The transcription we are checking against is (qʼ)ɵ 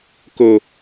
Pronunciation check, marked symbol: incorrect: k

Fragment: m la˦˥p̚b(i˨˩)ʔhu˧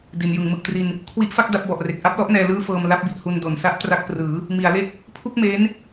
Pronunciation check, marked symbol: correct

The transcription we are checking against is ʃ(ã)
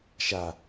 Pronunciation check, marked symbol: incorrect: a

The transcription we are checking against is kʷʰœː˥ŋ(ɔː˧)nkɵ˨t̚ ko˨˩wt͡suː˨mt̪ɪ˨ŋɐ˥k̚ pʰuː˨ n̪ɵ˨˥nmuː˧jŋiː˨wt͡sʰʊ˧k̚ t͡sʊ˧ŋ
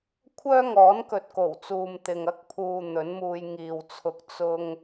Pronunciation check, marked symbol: incorrect: ɔː˨˥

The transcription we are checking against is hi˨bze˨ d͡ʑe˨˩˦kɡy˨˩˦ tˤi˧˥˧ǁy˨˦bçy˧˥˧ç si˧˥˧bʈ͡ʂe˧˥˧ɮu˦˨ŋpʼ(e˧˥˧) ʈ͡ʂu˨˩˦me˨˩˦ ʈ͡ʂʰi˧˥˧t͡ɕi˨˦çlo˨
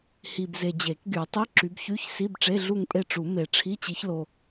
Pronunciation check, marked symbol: incorrect: e˦˨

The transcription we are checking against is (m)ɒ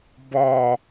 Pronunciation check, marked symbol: incorrect: b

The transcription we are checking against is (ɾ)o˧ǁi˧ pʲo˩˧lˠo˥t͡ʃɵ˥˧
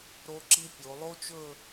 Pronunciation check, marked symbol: correct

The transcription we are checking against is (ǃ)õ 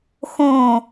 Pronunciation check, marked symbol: incorrect: x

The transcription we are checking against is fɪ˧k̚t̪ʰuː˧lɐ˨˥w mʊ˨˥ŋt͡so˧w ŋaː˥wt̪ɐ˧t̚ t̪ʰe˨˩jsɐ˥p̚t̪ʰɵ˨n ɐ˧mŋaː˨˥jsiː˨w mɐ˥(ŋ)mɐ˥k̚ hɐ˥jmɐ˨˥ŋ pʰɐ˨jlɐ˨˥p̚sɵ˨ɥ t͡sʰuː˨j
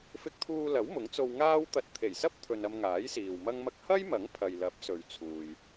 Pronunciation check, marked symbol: correct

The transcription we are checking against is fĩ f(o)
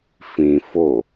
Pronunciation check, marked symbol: correct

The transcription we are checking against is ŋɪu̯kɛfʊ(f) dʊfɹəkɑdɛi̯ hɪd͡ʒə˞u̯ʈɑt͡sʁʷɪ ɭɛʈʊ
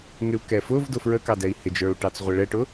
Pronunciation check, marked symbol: incorrect: v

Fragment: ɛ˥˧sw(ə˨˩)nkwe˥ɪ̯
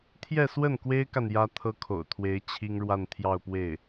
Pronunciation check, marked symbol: incorrect: ə˥˩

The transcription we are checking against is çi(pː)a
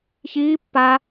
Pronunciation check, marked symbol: correct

